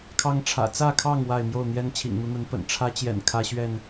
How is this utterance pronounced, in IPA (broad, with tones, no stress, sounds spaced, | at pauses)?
kʰ ɑ˦ ŋ ʈ͡ʂʰ ä̰˨˩ t͡s ä˥˨ kʰ ɑ˥˨ ŋ w a˥˨ ɪ̯ m j o˥˨ ʊ̯ n̪ j ɛ˦ n t͡ɕʰ ḭ˨˩ ŋ n̪ u˨˦ n̪ ə˨˦ n p ə̰˨˩ n ʈ͡ʂʰ ä˦ t͡ɕ j ɛ̰˨˩ n kʰ ä˦ ɕ ɥ ɛ˥˨ n